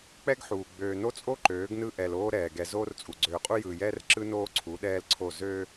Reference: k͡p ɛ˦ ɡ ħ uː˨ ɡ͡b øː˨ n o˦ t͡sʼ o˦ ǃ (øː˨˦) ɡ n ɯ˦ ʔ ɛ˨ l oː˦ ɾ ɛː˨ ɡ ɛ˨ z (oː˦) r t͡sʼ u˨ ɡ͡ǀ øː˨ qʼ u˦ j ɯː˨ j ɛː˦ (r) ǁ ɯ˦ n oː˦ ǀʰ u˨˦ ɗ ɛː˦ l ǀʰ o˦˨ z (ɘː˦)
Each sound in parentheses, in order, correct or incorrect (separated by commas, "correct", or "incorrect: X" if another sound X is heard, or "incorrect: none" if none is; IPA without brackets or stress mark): correct, correct, correct, incorrect: øː˦